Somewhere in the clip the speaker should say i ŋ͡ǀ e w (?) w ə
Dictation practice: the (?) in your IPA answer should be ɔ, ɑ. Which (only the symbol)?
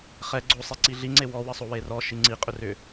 ɔ